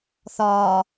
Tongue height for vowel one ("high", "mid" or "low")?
low